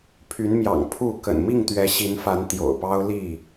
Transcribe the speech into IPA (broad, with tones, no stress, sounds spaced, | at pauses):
pʰ y˨˦ n m j ɑ̰˨˩ ŋ pʰ u˥˨ k ə̰˨˩ n m i˥˨ ŋ t̪ ɥ ɛ˨˦ ɕ i˨˦ n f a˨˦ n t̪ j o̰˨˩ ʊ̯ p ɑ˦ ʊ̯ l i˥˨